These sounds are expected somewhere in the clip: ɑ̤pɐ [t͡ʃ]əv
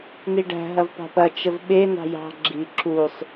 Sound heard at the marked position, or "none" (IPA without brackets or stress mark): t͡ʃ